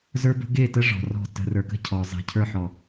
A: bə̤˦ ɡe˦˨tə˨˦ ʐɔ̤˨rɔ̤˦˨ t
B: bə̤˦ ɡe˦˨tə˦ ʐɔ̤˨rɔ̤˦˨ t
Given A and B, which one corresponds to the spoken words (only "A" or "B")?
B